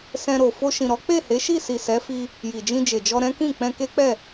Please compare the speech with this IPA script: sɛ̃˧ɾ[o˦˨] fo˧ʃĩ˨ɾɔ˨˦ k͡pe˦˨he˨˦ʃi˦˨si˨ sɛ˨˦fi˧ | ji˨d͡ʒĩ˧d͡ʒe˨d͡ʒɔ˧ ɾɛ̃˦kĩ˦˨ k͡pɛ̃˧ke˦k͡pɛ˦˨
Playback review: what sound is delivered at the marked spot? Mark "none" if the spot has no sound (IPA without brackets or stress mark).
o˨